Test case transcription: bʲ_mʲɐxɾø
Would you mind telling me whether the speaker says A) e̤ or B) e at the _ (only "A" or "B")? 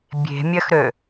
A